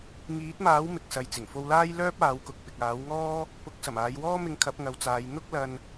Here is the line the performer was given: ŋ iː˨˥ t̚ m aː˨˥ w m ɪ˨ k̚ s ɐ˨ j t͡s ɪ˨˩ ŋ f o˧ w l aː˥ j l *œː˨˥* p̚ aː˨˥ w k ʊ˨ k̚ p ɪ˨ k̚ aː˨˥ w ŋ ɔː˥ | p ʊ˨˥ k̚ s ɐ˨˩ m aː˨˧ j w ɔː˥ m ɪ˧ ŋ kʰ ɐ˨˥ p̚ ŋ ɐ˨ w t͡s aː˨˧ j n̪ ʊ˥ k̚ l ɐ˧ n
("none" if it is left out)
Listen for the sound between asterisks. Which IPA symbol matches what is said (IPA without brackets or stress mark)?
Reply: œː˥